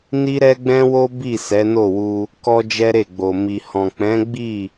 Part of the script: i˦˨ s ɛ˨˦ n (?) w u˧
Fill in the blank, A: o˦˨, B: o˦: A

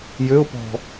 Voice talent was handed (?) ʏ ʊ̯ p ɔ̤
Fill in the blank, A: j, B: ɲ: A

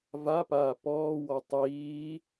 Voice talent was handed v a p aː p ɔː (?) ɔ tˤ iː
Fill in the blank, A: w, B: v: A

